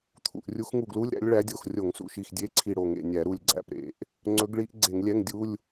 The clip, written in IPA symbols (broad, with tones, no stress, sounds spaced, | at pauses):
t̪ʰ ṵ˧˩ ʔ rʲ u˧˥ x ŋ u˧˩ ɡ l u˧˥˧ lʲ ɾ æ̰˧˥ lʲ ɭ æ˧˥ dʲ o˧˩ x rʲ o˧˩˧ ŋ s ṵ˧˩ ʃ i˧˩ x dʲ e˧˥˧ ǀʰ i˧˩ ɽ o˧˩ ŋ ḛ˧˩ nʲ æ˧˩˧ ɾ u˧˩ lʲ ɡ͡ǀ æ̰˧˩ p ɾ ḛ˧˩˧ ʔ | ŋ͡ǀ ɵ˧˥ ɡ ɭ i˧˥ ʔ ɡ͡ǀ e˧˩˧ ŋ lʲ ɛ˧˥˧ ŋ dʲ u˧˥˧ lʲ